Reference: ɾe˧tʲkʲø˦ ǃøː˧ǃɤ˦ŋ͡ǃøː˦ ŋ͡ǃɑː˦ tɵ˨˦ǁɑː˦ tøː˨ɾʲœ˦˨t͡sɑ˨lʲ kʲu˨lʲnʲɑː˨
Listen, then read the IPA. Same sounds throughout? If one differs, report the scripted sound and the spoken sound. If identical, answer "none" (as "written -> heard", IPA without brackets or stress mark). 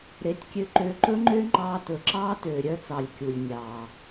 ɤ˦ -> ɵ˦